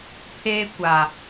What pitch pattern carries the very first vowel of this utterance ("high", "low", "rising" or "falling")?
high